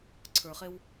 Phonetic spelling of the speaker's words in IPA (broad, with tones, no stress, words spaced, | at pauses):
ǀʰə˞˨χe˧w